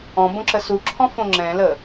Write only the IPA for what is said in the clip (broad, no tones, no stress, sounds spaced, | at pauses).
ɔ̃ b õ ǁ ə s u ǁʰ ɔ̃ f õ ŋ͡ǁ ɛ̃ l ə